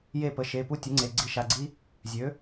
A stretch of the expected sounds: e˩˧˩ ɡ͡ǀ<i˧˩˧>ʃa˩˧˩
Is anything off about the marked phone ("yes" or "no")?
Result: no